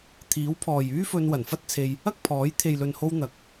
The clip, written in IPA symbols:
t̪ʰiː˨˥wpʰɔː˨j yː˥fɵ˧n wɐ˨˩nfɐ˥t̚t͡sʰe˧j | ɐ˥k̚pʰɔː˨˥j t̪ʰe˨jlɵ˨nho˧w n̪ɐ˨k̚

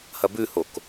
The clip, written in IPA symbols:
hɐbʉhok

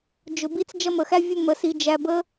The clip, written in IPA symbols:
d͡ʒʊ˨bi˦t͡s d͡ʒʌ˦mə˨xæ˦ vʲʊ˦mə˨si˨ d͡ʒæ˨bə˨˦

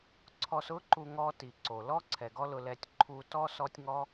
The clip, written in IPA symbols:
ǀʰɔ˧sʊ˦ ǃu˧ŋɔ˧ti˨ ǀo˨lɔ˦ ǀʰɛ˨ɡɔ˧ lʊ˧lɛ˧tʲ ǃʰu˧tɔ˦ sɔ˦tʲŋɔ˦

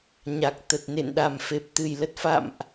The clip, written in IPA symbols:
ɲa˨˩k̚ t̪ə˨˩t̚nḛ˧˨nɗa˨˩m fe˨˩p̚t̪ɨ˨˩j lə˨˩t̚fa̰˧˨mʔ

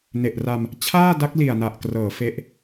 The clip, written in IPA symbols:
ne˨˩ʔra˧m | t͡ɕʰaː˥˩da˦˥k̚li˨˩a̯ na˨˩ʔ krɤː˩˦ fe˦˥ʔ

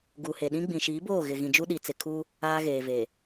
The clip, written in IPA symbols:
ɡu˨he˨ɗĩ˦ ɡ͡bĩ˨ʃiː˨˦boː˦˨ɣɪ˨ ɣĩ˨d͡ʒu˦ɗi˨t͡sɪ˨ kʰu˦ | aː˦ɣeː˨ve˨

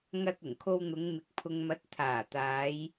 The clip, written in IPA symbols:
ŋɐ˧t̚ ʊ˨˩ŋkʰo˧wn̪ʊ˨˧ŋ mɪ˨k̚pʰʊ˨ŋmɐ˨˥t̚ t̪ʰaː˨˩t̪aː˨˧j

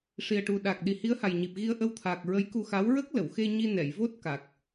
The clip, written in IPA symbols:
ʂi˨˩ə̯ʈu˨˩ ɗa˨˩k̚ ɗi˨˩hi˧˥ə̯ha˨˩jɲi˨˩p̚ ɣi˧ə̯ʔə˧wt̪ʰaː˨˩k̚ ɹə˧˥jku˧xa˧˥w ɹə˦˥k̚lə˨˩˨wxe˧ ɲi˧nɛ˨˩˨jvo˦˥t̚ ka˨˩k̚

